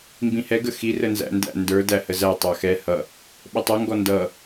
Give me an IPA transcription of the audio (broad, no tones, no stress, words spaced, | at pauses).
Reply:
mbĩhɛ ɡəxi rənzæ̰ndæ̰ ndə˞ dæhəzæ tˤɑxɛ hʌ | ɓətˤʌ ŋɡɔndʌ